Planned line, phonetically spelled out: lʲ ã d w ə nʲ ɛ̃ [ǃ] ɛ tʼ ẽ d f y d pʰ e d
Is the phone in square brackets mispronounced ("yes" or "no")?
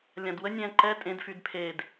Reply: no